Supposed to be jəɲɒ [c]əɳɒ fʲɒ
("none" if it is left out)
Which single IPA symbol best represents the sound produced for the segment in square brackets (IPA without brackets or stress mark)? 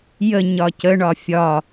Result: c